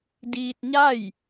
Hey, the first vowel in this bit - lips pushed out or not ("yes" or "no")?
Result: no